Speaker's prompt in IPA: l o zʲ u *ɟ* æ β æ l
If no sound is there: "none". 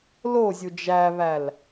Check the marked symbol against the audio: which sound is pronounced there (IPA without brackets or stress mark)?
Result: d͡ʒ